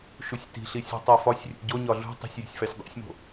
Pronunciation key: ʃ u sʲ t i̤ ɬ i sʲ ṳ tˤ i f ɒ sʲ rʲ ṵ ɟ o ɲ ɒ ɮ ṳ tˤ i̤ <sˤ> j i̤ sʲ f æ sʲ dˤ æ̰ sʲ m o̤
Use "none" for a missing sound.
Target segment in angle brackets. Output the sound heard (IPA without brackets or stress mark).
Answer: sʲ